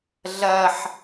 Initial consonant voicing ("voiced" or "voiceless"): voiced